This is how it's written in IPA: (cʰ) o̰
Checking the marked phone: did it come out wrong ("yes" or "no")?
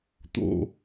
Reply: yes